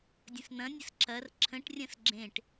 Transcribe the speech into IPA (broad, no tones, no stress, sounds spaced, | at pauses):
dʲ ə̃ s n̪ ɐ̃ nʲ ə s ǁ ɐ r ǁʰ ə̃ ʈ rʲ ɐ̃ s ɡ͡ǁ ẽ ʈ